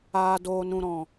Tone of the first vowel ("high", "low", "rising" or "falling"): low